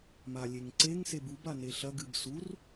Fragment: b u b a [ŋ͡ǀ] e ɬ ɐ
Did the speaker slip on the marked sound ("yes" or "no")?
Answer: yes